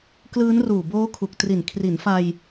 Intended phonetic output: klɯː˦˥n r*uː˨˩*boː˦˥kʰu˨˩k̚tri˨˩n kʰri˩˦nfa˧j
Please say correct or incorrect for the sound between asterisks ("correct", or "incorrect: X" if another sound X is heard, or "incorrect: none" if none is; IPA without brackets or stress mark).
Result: correct